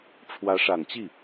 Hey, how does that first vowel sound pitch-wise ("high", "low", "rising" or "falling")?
rising